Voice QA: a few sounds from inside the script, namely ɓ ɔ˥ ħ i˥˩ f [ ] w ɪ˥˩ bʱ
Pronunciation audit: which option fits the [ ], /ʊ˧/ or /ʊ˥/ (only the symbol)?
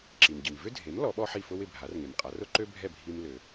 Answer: ʊ˥